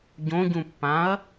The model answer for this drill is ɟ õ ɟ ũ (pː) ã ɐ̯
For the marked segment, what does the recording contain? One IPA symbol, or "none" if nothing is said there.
pː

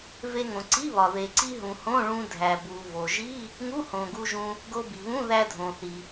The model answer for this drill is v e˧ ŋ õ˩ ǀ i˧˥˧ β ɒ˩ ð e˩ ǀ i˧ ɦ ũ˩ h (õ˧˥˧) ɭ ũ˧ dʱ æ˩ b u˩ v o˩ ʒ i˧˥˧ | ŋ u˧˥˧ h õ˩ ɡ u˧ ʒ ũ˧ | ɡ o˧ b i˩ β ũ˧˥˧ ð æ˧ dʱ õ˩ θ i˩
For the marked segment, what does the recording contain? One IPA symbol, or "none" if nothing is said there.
õ˧˥˧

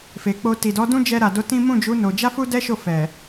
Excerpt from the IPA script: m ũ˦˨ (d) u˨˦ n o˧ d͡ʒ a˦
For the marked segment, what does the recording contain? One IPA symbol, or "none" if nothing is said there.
d͡ʒ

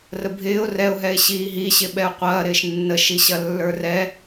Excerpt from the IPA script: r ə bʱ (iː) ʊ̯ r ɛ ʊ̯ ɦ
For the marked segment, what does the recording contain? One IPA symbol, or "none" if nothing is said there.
ɪː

